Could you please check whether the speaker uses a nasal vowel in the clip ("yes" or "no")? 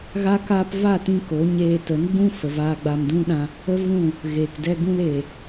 yes